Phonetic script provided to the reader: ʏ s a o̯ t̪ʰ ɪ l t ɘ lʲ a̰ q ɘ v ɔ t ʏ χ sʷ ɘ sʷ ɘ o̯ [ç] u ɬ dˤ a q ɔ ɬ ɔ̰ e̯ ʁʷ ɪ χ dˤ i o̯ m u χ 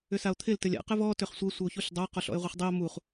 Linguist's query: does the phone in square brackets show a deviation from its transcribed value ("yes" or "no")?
no